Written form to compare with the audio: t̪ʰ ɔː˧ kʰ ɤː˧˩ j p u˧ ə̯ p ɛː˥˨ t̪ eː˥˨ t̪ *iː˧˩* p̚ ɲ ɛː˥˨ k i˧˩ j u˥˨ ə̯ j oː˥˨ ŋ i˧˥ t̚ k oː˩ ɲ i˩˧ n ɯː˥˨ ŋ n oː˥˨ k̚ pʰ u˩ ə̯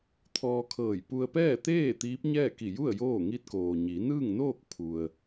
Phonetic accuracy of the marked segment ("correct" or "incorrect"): incorrect